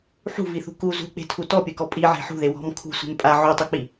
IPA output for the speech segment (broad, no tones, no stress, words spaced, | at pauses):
ħṳviθṳ ku zṳk͡pe̤tʰu tɔpʲɯkɔ pʼiʕe̤ ħṳðe wɔ̤m kʰṳsʷe̤m pʼa ʕutˤuk͡pi